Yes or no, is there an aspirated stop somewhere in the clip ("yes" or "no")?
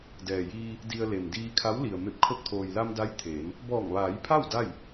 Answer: yes